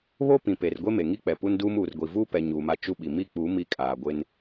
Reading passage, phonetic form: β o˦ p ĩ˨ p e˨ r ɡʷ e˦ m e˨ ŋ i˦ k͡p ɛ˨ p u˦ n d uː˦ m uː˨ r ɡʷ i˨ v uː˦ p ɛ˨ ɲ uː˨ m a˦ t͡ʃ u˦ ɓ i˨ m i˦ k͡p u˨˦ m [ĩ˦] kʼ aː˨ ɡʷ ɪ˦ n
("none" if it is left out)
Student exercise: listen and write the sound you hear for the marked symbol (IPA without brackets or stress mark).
i˦